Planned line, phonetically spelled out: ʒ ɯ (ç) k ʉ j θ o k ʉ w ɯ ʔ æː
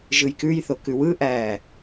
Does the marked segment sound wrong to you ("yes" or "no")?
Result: yes